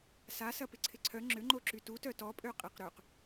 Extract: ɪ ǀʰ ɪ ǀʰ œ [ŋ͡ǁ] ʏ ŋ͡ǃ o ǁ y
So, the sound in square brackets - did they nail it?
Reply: yes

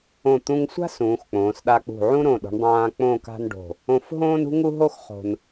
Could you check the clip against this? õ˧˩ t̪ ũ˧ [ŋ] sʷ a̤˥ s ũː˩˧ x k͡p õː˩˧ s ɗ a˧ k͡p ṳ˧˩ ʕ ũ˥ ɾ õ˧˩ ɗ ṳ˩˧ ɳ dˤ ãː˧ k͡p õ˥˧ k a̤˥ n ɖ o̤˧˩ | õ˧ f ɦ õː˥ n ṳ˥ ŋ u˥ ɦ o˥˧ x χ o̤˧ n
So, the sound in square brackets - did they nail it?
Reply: yes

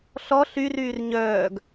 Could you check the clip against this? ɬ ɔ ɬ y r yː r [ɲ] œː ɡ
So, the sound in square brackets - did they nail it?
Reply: yes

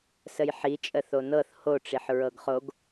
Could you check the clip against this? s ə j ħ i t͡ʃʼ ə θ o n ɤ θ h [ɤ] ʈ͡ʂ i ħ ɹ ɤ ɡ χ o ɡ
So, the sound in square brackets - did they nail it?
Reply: no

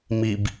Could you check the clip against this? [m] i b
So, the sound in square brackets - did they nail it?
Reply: yes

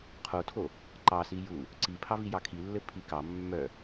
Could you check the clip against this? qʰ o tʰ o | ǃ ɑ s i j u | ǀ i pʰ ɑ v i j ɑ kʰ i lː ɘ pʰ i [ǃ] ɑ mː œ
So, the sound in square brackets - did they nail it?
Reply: no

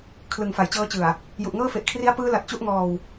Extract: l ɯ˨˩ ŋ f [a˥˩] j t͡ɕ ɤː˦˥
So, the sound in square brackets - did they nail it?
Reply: no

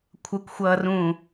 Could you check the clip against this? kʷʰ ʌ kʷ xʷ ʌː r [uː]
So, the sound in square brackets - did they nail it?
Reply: no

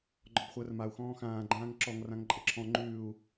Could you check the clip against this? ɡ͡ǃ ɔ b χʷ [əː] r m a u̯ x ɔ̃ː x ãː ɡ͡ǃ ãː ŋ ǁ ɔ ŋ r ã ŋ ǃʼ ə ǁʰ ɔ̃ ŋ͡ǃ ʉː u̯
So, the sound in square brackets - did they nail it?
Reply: yes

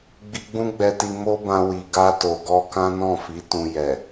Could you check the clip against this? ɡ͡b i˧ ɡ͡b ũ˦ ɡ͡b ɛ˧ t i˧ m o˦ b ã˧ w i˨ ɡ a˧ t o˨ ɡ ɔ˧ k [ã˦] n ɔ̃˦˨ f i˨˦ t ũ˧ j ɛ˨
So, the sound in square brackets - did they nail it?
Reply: yes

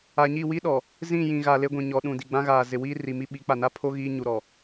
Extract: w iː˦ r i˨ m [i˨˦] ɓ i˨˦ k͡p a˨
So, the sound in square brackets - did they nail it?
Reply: no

